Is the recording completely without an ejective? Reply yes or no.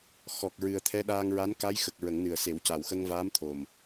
yes